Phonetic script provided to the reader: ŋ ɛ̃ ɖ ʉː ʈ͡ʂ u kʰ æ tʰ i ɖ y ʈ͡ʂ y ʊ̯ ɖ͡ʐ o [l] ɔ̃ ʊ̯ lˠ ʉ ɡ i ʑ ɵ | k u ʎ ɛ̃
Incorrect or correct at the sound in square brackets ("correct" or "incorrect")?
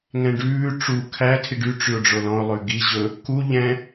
correct